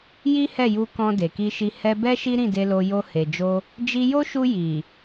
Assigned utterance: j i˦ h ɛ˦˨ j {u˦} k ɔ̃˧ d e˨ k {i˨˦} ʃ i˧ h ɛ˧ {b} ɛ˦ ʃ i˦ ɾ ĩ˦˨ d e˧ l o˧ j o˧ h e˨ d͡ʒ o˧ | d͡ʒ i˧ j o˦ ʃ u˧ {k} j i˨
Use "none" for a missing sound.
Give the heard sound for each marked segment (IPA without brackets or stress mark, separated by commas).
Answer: u˧, i˧, b, none